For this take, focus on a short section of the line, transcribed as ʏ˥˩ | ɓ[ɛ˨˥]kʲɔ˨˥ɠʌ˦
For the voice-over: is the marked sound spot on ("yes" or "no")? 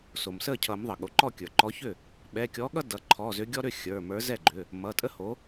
no